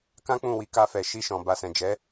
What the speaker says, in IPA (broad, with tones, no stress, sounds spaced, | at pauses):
k ã˦ k͡p ũ˦˨ w i˨˦ k a˧ f ɛ˨ ʃ i˧ ʃ ɔ̃˨ b a˨ s ɛ̃˨ d͡ʒ ɛ˨˦